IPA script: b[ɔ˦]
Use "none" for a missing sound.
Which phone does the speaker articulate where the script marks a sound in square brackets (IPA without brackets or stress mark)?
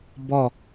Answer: ɔ˦˨